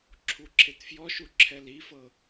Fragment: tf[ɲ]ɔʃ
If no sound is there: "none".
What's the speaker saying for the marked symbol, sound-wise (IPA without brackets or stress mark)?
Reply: j